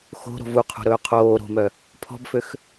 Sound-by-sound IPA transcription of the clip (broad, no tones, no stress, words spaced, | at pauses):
xo̤ ɾo̤vuqʰo̤ ɾɵːqʰoː ɾo̤mœ | pʰɔ̤bføx